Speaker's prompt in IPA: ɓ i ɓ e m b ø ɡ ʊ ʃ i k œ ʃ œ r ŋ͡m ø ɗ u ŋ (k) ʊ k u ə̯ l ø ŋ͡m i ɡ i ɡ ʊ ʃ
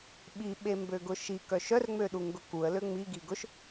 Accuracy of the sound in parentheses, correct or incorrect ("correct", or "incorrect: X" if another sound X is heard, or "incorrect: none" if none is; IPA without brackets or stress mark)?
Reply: incorrect: ɡ